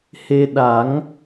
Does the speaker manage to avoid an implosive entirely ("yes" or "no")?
no